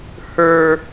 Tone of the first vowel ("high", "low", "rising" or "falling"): high